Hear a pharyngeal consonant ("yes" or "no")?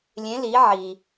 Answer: yes